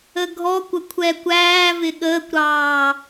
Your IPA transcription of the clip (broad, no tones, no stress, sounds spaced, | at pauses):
ə ɡʱ ɔ kʷ ə kʷʰ ɛ kʷ æː v ɪ ɠ əː kʷ ɾ ɑː